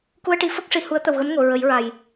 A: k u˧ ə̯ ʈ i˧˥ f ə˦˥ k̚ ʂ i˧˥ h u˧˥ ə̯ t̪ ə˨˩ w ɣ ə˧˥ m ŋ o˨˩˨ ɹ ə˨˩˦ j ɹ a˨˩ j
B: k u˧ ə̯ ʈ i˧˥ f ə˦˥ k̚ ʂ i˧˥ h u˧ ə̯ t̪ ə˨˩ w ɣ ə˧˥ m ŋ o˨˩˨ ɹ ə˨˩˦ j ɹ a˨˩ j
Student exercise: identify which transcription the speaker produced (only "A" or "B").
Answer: A